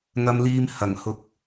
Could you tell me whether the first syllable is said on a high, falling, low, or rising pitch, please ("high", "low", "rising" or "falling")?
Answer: high